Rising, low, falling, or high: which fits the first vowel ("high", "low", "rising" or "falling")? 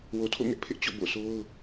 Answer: low